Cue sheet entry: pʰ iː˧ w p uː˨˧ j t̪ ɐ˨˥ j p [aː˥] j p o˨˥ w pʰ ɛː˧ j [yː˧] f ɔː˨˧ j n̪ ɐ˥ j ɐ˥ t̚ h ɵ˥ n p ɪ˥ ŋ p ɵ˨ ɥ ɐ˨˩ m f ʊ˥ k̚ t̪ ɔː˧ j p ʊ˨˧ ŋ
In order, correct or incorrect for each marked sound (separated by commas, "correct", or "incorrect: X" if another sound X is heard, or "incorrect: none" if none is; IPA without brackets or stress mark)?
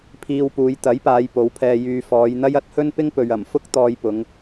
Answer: incorrect: aː˨˧, correct